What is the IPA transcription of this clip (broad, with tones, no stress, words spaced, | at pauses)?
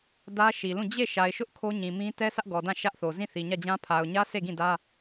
dä˦ʃi˨lũ˦˨ d͡ʑe˦˨ ʃa˨ɪ̯ʃʊ˦ʔ kʰo˦ɲĩ˨mĩ˦ tɛ˦sʰä˦ʔɡɔ˨ dã˦˨ ʃä˦ʔθo˨ zĩ˦˨θi˨ɲä˦˨d͡ʑã˦ pʰa˨ʊ̯ɲä˦ se˦˨ɡĩ˦˨dä˦